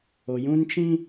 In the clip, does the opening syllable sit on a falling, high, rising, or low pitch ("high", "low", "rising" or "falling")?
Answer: low